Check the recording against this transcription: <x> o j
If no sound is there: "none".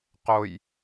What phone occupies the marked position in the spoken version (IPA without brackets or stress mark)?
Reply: q